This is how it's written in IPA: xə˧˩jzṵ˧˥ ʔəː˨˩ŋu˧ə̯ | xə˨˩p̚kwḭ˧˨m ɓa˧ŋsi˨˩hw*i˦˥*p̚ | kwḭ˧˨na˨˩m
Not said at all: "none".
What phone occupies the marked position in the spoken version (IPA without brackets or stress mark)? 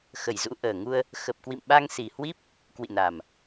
i˦˥